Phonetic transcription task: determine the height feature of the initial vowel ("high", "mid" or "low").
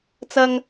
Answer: low